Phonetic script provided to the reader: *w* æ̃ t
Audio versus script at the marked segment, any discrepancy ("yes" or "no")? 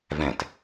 yes